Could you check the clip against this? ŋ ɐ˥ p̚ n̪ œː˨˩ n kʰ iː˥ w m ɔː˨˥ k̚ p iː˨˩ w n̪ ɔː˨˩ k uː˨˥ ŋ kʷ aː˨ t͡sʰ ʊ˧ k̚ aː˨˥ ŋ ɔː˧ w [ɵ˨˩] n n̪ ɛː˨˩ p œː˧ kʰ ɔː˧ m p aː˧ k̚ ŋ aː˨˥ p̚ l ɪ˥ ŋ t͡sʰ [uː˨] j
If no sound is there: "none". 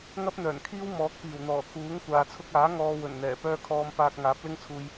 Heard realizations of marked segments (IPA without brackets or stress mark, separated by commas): ɵ˨˩, uː˧